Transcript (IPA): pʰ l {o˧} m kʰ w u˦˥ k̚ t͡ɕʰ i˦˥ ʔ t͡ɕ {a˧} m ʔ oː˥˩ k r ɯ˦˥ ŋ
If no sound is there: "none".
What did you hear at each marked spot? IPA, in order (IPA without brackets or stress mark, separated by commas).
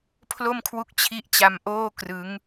o˥˩, a˧